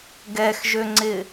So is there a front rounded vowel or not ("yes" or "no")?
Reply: yes